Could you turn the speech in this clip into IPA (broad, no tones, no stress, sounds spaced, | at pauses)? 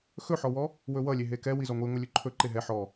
x ɵ ħ ɔ w ɔ | w ɵ w ʌ lʲ e ɦ e k ɛ w i z ɔ ŋʷ i ŋʷ e lʲ ɵ ǃʰ ɵ ǃ e ɦ ɛ ħ ɔ